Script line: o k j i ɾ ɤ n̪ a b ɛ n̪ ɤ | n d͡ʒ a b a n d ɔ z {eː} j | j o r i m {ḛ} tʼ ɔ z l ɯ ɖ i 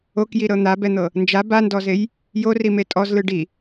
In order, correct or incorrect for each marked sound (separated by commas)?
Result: incorrect, incorrect